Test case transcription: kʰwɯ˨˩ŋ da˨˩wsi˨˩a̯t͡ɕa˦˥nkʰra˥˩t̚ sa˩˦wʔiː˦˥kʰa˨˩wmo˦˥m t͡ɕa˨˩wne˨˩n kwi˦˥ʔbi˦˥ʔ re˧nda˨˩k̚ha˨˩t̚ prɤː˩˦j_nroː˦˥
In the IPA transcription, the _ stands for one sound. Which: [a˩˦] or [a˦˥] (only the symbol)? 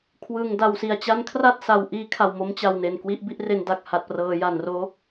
a˩˦